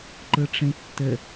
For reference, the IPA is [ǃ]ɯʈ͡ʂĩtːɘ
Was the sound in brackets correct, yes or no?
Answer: yes